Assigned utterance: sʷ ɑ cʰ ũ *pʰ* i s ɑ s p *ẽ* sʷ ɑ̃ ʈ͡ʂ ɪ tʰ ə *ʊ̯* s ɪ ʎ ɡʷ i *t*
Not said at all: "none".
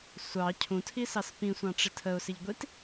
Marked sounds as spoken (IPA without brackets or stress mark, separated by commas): tʰ, ĩ, ʊ̯, t